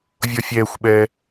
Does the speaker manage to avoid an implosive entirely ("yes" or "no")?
no